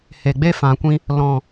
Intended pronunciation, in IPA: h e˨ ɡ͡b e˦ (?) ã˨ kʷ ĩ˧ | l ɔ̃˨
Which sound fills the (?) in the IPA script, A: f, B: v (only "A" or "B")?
A